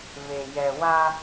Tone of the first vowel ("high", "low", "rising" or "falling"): low